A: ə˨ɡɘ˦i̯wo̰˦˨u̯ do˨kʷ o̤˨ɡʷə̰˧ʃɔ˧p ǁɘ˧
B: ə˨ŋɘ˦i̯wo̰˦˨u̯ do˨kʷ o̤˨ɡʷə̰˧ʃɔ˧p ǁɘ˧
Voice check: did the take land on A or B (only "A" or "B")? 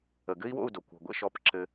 A